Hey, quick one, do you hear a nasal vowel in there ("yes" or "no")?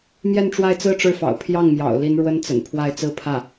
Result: no